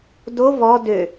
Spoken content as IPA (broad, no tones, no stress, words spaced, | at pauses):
do vɔ dø